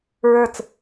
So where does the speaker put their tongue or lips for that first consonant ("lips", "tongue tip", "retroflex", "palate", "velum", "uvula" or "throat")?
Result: tongue tip